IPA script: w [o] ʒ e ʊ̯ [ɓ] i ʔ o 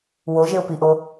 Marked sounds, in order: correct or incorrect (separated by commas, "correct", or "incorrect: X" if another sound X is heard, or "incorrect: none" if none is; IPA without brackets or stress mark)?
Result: correct, incorrect: p